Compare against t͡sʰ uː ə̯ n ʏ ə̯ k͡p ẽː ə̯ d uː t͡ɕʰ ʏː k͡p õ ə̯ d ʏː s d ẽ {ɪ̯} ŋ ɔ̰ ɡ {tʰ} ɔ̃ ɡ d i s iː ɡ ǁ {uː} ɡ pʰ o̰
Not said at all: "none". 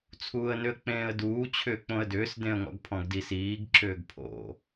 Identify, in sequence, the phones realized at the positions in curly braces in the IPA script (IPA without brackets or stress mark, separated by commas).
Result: ə̯, pʰ, ʏː